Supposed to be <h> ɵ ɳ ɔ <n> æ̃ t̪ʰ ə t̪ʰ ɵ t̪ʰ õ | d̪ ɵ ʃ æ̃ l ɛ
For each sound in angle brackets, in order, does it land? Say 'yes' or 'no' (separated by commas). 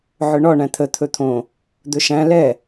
no, no